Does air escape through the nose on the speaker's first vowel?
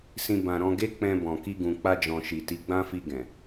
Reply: yes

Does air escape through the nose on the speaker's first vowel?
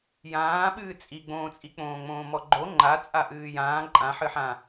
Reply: yes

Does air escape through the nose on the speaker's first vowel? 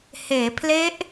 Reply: no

